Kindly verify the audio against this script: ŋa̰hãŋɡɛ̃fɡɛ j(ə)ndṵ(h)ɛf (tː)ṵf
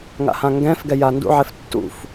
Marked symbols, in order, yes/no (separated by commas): no, no, yes